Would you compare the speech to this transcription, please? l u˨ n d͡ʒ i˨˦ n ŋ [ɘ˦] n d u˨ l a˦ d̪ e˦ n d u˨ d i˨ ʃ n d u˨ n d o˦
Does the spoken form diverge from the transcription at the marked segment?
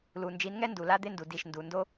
yes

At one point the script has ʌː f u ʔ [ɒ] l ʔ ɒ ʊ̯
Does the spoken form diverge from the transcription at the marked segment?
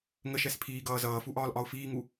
yes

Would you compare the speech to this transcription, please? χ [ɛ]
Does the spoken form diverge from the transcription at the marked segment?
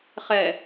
no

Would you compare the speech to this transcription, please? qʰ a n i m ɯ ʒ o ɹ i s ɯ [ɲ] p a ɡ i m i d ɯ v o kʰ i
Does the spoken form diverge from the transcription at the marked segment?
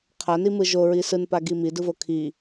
yes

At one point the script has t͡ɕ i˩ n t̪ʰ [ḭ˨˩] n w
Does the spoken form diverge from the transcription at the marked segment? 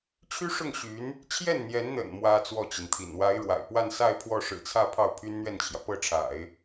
no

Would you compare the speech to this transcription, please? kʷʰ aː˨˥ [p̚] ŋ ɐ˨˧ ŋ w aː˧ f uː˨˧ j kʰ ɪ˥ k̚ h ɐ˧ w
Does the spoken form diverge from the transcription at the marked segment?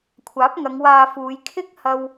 no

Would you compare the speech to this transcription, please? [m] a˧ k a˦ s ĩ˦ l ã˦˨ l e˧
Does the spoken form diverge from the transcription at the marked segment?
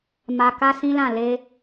no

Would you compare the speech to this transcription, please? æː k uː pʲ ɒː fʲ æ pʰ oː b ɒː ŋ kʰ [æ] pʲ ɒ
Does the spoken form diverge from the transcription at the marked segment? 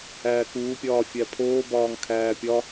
yes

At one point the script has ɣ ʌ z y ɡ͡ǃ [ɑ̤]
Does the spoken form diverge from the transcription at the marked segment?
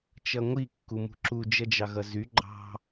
no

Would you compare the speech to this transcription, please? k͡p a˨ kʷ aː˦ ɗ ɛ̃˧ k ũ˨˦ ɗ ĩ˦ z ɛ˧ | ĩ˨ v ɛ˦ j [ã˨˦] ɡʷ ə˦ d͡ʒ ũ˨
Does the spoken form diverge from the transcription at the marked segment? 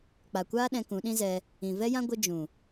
yes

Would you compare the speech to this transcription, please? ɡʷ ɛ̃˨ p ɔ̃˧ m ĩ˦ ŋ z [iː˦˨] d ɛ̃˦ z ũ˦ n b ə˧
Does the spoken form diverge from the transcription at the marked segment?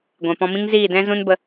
no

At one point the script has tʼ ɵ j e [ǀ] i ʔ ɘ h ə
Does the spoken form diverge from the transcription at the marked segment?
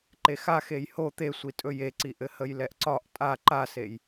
no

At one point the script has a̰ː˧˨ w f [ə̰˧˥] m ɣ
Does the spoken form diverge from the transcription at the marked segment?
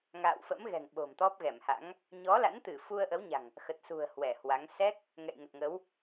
no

